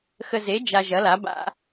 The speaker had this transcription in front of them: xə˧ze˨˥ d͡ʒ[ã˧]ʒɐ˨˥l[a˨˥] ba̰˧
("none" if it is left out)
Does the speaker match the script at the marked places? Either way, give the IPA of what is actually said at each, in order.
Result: a˧, a˨˥

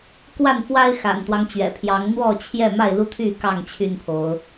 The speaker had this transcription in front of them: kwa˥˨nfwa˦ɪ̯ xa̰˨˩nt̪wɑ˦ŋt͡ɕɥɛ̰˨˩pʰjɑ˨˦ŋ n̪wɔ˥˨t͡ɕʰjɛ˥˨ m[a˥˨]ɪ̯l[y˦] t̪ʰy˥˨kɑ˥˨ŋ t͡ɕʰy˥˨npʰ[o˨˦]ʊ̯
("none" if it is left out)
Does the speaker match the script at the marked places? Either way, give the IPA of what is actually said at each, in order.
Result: a˥˨, u˦, o˨˦

